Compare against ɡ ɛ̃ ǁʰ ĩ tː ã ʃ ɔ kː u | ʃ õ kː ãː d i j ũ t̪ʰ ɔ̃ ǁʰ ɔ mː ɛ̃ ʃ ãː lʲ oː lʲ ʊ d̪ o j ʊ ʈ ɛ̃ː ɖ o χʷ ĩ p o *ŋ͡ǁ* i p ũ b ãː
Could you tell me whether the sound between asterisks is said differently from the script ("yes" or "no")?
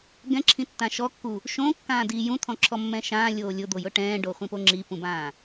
no